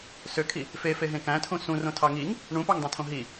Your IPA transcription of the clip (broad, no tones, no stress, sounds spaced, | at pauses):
s ø kʰ i | f e f e ɦ ẽ k æ̃ tʰ ũ s ũ r õ tʰ ɑ ŋ i ŋ | ɳ ũ p ɑ ŋ dˤ ẽ tʰ õ ɦ i